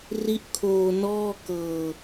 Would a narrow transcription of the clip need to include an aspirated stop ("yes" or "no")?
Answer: yes